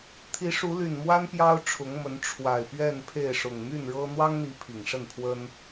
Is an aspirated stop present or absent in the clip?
present